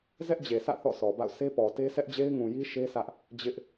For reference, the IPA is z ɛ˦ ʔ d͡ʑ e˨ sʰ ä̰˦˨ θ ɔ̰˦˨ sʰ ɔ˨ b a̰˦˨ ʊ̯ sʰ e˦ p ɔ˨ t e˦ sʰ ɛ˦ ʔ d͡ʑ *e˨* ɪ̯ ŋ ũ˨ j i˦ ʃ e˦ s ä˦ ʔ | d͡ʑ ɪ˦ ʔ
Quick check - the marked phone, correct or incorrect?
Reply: incorrect